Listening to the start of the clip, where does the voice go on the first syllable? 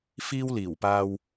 high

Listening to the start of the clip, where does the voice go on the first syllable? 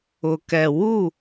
low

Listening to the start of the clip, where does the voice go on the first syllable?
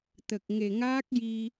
low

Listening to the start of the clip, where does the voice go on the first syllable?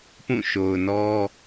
falling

